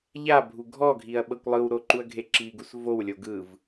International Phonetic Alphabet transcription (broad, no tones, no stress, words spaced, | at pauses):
ʎabʱu ɡʱɔɡʱiɐ̯ ɓɤkʷlˠɯwɾo ǃuɐ̯ɡʱeǁiɡus vowlʲo ɡɯv